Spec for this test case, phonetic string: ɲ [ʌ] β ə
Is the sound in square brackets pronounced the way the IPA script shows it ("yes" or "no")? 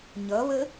yes